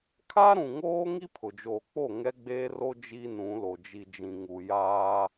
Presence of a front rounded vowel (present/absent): absent